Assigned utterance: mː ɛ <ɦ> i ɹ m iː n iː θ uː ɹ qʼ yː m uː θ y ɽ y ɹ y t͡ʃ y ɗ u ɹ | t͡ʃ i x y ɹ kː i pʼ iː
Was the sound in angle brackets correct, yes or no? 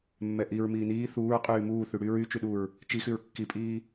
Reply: no